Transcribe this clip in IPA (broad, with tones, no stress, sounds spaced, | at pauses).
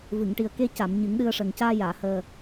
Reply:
v ɨ˨˩˨ ŋ ʈ i˨˩ ə̯ k e˧ c a˨˩˨ m ɲ ɨ˨˩˦ ŋ ɗ ɨ˧ ə̯ ʂ ə˨˩ ŋ c aː˧ j aː˨˩˨ h əː˨˩